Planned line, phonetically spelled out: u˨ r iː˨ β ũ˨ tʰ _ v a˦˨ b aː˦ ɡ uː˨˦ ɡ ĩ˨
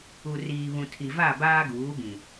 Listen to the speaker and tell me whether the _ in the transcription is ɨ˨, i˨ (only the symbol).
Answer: i˨